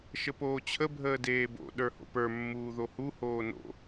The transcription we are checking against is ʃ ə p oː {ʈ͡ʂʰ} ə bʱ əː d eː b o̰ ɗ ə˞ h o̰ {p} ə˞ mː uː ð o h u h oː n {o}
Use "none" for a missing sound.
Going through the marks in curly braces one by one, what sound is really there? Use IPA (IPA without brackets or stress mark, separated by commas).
t͡ɕʰ, p, o̰